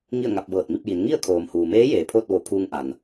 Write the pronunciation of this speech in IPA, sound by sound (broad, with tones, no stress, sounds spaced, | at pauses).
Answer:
ŋ i˥˨ ə̯ ŋ a˧ p̚ b ɤː˧˩ t̚ m i˥˨ p̚ j i˩˧ n ŋ i˥˨ ə̯ kʰ oː˩ m h uː˩ m eː˧˥ j eː˩ pʰ oː˥˨ t̚ ʋ o˧˩ pʰ uː˧ ŋ ʔ a˩ n